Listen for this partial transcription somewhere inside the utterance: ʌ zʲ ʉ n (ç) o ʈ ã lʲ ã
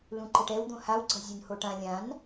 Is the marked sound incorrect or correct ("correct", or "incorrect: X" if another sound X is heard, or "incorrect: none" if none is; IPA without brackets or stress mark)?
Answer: incorrect: h